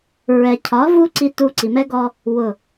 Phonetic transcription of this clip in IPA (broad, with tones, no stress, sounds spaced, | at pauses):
ɹ ɛ˨ cʰ ɒ˨˦ v u˦ ǀ i˧ t u˧ ǀ i˨ m ɛ˦ ɡ ɔ˧ | w ʊ˨